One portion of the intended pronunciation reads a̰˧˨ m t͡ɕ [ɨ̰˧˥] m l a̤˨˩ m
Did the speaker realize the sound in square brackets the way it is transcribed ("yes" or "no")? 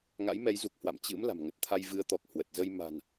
yes